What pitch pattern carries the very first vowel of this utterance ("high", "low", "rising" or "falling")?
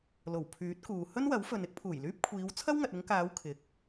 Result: low